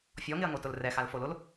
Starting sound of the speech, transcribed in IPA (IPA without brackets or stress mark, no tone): fʲ